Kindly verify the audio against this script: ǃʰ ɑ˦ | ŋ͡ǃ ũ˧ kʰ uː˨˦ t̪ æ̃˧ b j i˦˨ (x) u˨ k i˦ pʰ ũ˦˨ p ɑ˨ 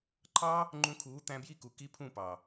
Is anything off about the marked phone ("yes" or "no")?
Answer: yes